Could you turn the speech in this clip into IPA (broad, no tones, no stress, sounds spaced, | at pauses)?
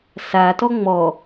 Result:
s a t ɔ ŋ͡m ɔ